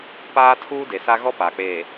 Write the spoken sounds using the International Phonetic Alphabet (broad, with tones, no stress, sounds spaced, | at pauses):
p aː˦ tʰ uː˦ d e˨ s a˦ ɣ ɔ˦ p aː˨ k͡p eː˨